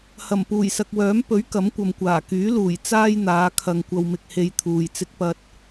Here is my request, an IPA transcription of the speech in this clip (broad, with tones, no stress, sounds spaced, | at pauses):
h ɐ˨˩ m p uː˨˩ j s ɐ˨ k̚ w œː˨˥ m p ɵ˨˥ ɥ k ɐ˨˥ m kʷ ɐ˨ m kʷ aː˨˩ k yː˨˥ l uː˨˩ j t͡s aː˥ j n̪ aː˨˧ kʰ ɐ˨ ŋ kʷ ɐ˨ w m ɪ˨ k̚ h e˨ j t̪ʰ uː˨ j t͡s ɪ˥ k̚ p ɐ˥ t̚